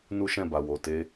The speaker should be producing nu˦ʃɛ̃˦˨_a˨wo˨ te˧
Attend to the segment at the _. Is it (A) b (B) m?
A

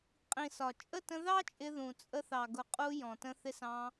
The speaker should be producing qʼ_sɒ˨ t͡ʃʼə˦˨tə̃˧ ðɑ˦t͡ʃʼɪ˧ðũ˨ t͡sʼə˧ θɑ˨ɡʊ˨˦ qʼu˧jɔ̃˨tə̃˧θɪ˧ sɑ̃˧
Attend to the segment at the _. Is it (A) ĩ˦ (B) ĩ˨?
B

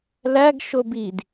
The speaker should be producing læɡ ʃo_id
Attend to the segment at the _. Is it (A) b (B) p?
A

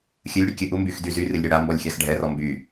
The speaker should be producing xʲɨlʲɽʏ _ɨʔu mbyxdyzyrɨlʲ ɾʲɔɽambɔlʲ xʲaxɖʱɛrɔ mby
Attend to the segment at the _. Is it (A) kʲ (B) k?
A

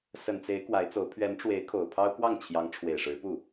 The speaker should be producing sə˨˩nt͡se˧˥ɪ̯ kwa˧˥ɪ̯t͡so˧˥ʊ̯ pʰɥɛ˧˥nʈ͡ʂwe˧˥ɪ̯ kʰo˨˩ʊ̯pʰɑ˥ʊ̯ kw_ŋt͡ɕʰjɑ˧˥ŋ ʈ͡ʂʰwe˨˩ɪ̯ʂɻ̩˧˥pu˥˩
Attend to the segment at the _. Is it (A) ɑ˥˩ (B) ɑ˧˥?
A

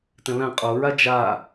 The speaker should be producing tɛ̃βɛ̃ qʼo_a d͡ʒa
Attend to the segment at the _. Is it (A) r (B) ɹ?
B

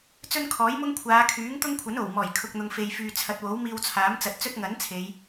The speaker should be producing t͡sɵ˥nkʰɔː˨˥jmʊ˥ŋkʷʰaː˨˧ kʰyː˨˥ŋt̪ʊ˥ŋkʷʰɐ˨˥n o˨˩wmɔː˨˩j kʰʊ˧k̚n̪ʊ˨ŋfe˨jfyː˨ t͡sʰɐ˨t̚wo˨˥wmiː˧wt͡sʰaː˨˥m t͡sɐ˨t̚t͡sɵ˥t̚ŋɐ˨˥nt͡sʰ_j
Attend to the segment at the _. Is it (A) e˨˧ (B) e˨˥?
A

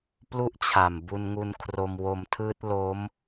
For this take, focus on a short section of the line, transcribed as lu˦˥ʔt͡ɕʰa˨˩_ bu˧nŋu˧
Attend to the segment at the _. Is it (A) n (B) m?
B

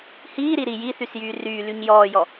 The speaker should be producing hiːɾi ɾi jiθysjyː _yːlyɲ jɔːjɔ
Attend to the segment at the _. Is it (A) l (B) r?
B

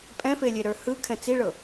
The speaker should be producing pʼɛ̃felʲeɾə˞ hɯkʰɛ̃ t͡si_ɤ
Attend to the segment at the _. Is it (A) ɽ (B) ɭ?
B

